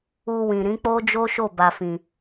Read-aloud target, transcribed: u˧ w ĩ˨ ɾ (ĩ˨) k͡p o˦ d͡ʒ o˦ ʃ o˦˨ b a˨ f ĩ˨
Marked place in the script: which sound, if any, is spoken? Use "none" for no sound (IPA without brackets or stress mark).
ĩ˨˦